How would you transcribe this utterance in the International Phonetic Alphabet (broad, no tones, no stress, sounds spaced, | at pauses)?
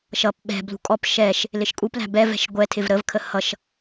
ʃ ʌ p ɓ ɛ̤ b l ṳ kʼ ɔ p ʃ ɛ ʃ | l ɪ ʃ kʼ u p l æ̤ b ɛ v ɛ̤ ʃ ɡʷ ɛ tʰ ɪ v ɾ ə v kʰ ə h ʌ ʃ